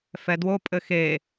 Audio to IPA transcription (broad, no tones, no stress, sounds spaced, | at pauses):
f ɛ d w o pʼ ɘ x e